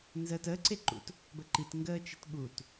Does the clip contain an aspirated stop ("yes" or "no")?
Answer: no